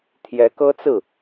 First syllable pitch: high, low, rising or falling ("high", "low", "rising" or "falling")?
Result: rising